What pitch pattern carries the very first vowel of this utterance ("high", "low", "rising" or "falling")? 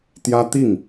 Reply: high